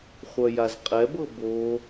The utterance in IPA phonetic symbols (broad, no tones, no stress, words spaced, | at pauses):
χʷœjazqʼɛbɤ bo